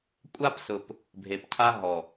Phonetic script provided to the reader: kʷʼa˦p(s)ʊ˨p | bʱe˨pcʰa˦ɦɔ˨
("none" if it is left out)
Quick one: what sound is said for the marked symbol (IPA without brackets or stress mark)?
s